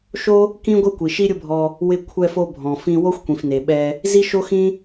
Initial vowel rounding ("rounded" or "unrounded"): rounded